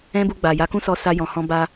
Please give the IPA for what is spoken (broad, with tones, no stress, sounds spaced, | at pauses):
ɛ̃˦ b u˧ ɡ͡b a˨ j a˨˦ k ũ˦ s ɔ˧ s a˧ j ɔ̃˨ h ɔ̃˧ b a˧